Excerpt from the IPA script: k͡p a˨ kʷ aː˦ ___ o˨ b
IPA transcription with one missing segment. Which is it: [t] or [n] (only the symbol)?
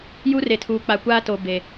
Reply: t